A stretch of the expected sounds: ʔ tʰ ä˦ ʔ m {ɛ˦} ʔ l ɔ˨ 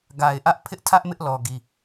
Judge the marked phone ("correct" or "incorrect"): incorrect